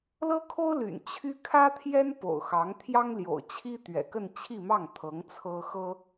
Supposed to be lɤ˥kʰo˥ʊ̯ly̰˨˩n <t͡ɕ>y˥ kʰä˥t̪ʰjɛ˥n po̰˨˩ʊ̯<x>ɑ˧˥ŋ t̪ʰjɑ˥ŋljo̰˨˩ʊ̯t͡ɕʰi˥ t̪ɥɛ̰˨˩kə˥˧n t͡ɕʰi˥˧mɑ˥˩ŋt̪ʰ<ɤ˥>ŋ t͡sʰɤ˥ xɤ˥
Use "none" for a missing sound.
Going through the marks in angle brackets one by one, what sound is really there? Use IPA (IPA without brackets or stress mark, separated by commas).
t͡ɕʰ, x, ɤ˧˥